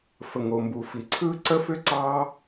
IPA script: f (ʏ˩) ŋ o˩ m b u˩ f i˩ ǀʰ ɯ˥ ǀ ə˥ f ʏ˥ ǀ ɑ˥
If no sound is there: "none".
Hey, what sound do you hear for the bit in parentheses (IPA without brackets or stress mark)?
ə˩